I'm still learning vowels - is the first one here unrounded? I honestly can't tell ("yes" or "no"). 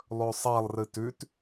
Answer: no